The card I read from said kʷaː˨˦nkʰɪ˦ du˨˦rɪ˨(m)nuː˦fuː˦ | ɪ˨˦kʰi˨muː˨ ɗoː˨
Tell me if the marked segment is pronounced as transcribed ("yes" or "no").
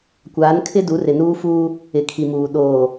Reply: no